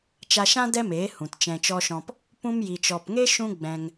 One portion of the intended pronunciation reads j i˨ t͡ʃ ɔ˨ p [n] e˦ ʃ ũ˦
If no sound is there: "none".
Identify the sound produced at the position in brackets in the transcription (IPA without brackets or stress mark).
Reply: ŋ